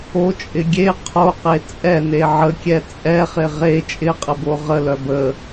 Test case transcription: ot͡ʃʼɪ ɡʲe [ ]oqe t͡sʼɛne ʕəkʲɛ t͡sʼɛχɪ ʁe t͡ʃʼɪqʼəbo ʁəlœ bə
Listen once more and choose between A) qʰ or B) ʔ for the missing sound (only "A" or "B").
A